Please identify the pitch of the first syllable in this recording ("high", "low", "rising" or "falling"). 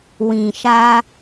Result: low